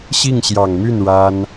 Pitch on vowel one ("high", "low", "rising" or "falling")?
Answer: falling